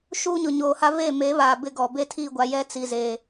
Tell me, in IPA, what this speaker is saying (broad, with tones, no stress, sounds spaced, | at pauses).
ʃ uː˦ ɲ ʊ˨ ɲ oː˨ h a˦ v eː˦˨ m e˨˦ β aː˨ b ɪ˦˨ ɡ ɔ˨ b e˦ tʰ iː˦˨ ɡʷ a˨ j ɛ˦ t͡s i˨ z eː˨